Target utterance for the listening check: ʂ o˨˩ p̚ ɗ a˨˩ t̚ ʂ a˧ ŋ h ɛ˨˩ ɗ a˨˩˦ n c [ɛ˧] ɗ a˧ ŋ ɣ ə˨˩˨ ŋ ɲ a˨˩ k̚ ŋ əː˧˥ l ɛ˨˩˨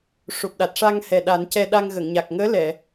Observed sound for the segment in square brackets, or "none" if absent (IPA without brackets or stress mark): ɛ˧